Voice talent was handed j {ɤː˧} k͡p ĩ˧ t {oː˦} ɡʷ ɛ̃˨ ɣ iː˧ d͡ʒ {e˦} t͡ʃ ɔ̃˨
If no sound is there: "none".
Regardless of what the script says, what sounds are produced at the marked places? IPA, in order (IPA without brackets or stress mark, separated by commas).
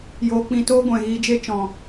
oː˧, oː˦, e˦